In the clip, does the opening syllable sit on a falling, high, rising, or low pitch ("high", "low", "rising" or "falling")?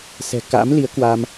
low